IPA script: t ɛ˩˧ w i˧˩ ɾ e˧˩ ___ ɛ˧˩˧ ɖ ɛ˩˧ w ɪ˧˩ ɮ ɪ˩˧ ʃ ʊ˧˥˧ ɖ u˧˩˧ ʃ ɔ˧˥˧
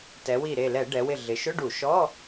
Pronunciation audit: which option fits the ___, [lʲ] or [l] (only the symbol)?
l